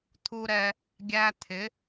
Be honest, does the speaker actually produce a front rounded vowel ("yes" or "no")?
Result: no